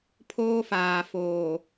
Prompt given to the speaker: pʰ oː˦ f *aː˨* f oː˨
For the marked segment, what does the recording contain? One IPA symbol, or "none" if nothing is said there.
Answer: aː˨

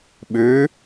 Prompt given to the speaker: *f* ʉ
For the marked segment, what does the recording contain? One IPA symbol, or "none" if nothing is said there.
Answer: ɓ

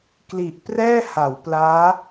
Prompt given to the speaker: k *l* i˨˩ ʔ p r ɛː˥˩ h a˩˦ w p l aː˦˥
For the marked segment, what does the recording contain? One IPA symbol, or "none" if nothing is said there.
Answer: l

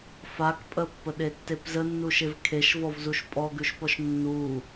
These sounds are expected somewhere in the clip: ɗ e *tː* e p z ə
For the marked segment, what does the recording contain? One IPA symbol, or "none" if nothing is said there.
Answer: tː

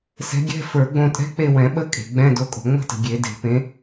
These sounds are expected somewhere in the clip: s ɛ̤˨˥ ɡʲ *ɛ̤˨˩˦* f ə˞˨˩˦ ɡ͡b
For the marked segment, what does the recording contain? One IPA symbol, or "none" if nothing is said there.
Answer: ɛ̤˧˥˧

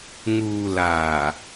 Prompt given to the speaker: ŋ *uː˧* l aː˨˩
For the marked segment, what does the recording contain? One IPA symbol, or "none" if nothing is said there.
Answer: uː˧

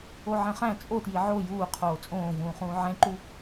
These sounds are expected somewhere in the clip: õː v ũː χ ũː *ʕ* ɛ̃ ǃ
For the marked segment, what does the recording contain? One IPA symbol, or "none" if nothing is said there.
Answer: ʕ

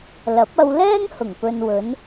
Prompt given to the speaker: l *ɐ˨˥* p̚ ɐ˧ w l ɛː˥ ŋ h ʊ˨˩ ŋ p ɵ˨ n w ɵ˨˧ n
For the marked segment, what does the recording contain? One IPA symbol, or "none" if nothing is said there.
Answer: ɐ˨˥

